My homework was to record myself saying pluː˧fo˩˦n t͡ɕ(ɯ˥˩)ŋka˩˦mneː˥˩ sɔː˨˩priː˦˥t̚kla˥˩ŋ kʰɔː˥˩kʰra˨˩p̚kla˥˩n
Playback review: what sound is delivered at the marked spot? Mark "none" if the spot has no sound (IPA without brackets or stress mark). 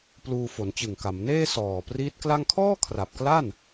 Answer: ɯ˨˩